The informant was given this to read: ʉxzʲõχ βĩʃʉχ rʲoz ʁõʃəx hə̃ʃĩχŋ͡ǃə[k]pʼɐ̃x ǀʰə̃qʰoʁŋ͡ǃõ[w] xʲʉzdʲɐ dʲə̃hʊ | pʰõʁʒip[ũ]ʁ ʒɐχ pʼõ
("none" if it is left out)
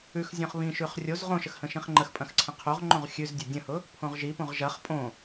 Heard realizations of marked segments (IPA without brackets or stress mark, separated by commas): x, ʁ, õ